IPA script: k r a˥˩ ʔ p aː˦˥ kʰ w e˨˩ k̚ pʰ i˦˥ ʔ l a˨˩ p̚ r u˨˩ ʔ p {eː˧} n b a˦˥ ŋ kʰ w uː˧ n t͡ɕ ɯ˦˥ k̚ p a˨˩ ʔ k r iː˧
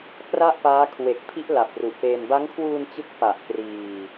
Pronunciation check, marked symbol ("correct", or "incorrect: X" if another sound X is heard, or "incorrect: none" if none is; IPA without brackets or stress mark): correct